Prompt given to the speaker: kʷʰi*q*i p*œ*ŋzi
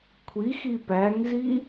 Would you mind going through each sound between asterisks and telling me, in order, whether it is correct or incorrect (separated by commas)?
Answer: incorrect, incorrect